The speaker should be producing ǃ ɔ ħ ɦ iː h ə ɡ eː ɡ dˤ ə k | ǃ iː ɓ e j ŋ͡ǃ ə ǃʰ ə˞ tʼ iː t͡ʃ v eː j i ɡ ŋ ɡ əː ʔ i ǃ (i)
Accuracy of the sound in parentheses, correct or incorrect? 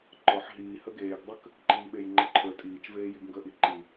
correct